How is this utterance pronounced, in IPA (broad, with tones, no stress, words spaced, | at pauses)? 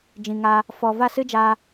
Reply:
d͡ʒĩ˨ ŋa˧ | fɔ˨ va˦˨sɨ˦d͡ʒa˧